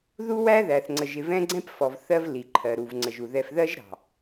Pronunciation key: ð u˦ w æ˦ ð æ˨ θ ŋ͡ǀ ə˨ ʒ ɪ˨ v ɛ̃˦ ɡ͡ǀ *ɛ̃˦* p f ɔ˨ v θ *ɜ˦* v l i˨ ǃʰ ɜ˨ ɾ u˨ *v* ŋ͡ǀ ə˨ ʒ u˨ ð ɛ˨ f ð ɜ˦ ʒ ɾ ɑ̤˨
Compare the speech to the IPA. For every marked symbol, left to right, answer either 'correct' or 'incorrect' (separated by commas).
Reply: correct, correct, correct